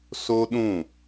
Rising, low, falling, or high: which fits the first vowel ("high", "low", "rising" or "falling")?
high